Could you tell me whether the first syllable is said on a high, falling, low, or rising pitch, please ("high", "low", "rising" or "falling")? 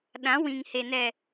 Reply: rising